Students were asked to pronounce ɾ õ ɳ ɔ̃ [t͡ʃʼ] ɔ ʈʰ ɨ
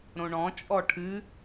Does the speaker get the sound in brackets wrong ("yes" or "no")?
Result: no